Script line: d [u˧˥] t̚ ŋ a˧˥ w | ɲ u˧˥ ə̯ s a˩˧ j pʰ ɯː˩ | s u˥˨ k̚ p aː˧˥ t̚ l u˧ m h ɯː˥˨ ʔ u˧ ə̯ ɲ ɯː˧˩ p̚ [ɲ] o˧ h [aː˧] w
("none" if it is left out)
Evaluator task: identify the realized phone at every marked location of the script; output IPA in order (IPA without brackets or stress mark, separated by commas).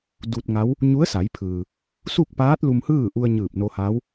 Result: u˧, n, aː˧˥